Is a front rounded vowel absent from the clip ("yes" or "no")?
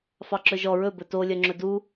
no